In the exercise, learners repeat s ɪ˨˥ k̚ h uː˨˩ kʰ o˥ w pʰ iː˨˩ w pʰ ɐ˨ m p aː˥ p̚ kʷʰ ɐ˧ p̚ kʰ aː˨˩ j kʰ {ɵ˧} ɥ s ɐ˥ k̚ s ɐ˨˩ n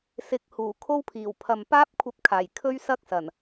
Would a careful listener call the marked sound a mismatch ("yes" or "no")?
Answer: yes